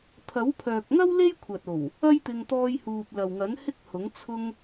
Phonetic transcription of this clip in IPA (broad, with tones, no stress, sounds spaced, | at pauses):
t̪ʰ ɐ˨˥ w pʰ œː˨ k̚ ŋ ɐ˥ w l e˥ j kʷʰ ɐ˨ t̚ o˨˩ w | ɐ˥ j t̪ ɪ˧ ŋ t̪ ɔː˧ j h uː˨ p̚ l ɐ˨ w ŋ ɐ˨˥ n h ɪ˥ k̚ h ʊ˨˥ ŋ t͡sʰ ʊ˧ ŋ